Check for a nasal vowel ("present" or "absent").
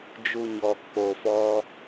absent